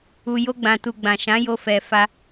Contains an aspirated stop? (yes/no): no